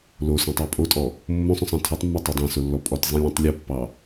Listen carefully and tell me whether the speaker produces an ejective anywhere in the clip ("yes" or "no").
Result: yes